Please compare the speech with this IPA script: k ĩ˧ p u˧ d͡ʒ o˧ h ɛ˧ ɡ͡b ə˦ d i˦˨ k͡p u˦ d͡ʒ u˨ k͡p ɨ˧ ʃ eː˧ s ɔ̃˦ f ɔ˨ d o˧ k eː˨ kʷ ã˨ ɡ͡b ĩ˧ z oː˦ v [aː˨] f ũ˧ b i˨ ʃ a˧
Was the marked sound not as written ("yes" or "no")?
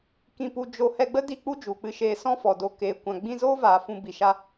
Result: no